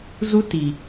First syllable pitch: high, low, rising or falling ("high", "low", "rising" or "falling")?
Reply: high